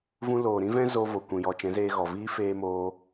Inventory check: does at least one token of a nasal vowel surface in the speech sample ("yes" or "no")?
yes